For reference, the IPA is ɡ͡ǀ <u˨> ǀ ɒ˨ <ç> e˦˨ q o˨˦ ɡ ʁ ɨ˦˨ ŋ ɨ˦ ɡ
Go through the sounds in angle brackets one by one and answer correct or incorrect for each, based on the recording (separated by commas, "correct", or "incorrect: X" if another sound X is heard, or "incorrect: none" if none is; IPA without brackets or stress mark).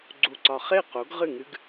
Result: correct, incorrect: χ